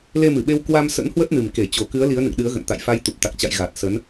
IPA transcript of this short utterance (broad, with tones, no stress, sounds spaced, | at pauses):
l e˧ m ɨ˧˩ ɓ e˧ w k w a˧ m s ə̰˧˥ n h w ə˦˥ t̚ n ɨ˨˩ m k e˧˩ t͡ɕ o˨˩ k ɨ˨˦ ə̯ l i˨˦ ə̯ n ɨ̰˧˨ ŋ ɗ ɨ˨˦ ə̯ ɣ ə̰˧˨ n t̪ a̰˧˨ j f a˧ j t̪ u˨˩ p̚ t̪ a˨˩ k̚ t͡ɕ a̰˧˨ j ɣ a˨˩ t̚ s ə˨˦ n